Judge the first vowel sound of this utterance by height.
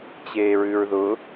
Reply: mid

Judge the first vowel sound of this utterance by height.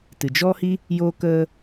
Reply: high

